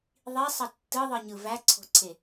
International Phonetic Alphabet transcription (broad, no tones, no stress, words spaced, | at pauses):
ðˤisˤə tːɯðˤɯɲɯ væǀʰo̤ǀʰe